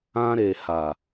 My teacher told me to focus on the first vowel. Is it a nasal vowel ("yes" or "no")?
yes